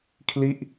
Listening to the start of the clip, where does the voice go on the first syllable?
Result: falling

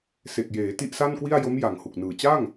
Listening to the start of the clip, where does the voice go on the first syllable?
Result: low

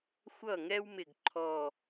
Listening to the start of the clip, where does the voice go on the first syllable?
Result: falling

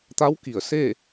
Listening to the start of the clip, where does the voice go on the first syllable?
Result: rising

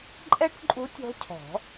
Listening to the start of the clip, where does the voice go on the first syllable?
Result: high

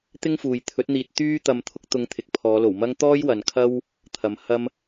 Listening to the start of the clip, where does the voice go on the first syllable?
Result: high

